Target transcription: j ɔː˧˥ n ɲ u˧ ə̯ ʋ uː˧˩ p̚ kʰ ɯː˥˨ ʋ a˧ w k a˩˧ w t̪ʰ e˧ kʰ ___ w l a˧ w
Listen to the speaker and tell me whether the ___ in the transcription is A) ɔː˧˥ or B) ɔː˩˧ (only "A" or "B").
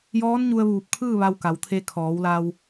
B